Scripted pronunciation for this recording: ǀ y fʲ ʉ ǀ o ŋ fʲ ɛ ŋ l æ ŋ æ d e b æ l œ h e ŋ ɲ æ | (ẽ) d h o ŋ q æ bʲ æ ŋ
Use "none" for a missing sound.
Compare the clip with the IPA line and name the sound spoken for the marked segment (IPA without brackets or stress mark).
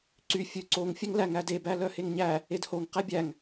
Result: e